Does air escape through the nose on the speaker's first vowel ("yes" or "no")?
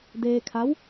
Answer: no